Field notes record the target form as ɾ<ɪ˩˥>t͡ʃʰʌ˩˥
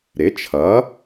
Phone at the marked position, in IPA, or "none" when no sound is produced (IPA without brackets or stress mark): ɪ˩˥